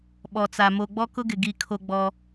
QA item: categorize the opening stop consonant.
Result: implosive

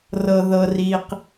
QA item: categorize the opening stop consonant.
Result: plain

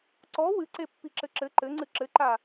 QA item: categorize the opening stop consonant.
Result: click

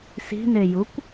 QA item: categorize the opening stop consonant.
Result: plain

